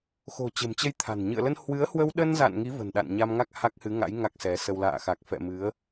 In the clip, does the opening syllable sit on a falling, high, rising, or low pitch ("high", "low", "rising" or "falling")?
low